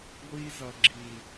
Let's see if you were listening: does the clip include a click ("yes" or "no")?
yes